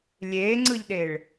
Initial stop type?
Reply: click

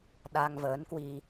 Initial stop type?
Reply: implosive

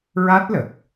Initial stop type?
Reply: plain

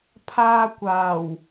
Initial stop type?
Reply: aspirated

